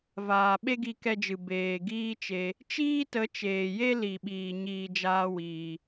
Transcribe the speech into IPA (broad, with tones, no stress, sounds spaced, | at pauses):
v aː˨ ɓ e˦ ɡ i˧ k ɛ˧ d͡ʒ ɨ˨ b eː˨ ɡ iː˦ t͡ʃ e˧ | t͡ʃ iː˦ t ə˨˦ t͡ʃ eː˨ j e˦ l i˨ ɓ iː˨ ɲ iː˨ d͡ʒ aː˦ w iː˧